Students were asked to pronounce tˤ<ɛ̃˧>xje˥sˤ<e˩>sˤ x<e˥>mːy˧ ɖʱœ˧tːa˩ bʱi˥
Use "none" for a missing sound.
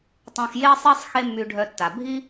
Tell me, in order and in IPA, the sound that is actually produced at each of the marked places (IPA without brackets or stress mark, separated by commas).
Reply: ɛ̃˧, e˥, e˥